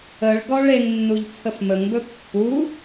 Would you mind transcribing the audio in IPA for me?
ə ɭ ɡ ɔ ɭ e ŋ nː u ʎ t͡sʰ ə f m ə ŋ b ɵ pː u

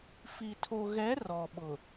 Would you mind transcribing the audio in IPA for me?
f i˨ tʰ o˨ ɣ ɛ˨˦ r ɔ˨ ɓ ʊ˨

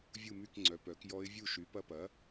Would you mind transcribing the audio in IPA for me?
vʲ u˥˨ m y˥˨ k ŋ͡ǀ œ˩˥ p œ˩˥ k j ɔ˧˥ ɪ̯ vʲ u˥˨ ʃ y˩˥ p ɐ˧˥ p ɐ˩˥

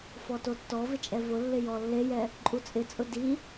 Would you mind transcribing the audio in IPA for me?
f ɔ t o tː ɔ v ɪ t͡ʃʼ ɛ v ʊ lː ɪ j ɔ lː e j ɛ | ǃʼ u t͡sʼ ɪ t͡sʼ ʊ d i

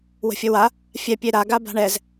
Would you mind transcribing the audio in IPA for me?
w ə̤ fʲ ə w a | fʲ ɛ pʲ e ɾ a ɡ a b a̤ ɳ ɛ z

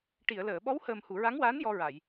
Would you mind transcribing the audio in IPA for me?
ʈ i˨˩˨ ə̯ l əː˨˩˨ ɓ ɔ˧˥ w h əː˨˩ m h u˨˩˨ ɹ a˧˥ ŋ w aː˧˥ n j ɔ˧ ɹ a˨˩˨ j

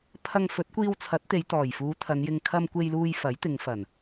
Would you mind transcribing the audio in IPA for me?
pʰ ɐ˧ ŋ f ɵ˨˥ t̚ kʷ iː˧ w t͡sʰ ɐ˨˥ t̚ t̪ e˨˧ j t̪ ɔː˨˩ j f uː˨˧ t̪ʰ ɐ˨˧ n j ɪ˧ ŋ kʰ ɐ˧ m kʷ e˧ j l uː˧ j f ɐ˨˥ j t̪ ɪ˨˧ ŋ f ɐ˨˩ n

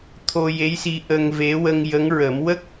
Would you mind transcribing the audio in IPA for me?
t̪ʰ o˧ j e˧˥ j s i˧ ʔ ə˧ ŋ v e˧˥ w ə˧ ŋ j ə˧˥ ŋ ɹ ə˨˩˦ m w ə˦˥ k̚

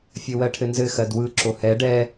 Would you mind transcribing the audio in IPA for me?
fʲ ɘ w ɜ ʈʰ ɘ n z ɘ x ɜ d w ɯ ǁ o h ɛ ɖ ɛ

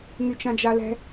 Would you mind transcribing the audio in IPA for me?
ŋ y t͡ʃ ã d͡ʒ a l ɛ̤

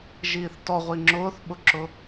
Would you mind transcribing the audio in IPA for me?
ʒ iː θ t ɔ ʁʷ i ŋ͡ǁ ʊː θ ɓ ʊ ǁ ʊ

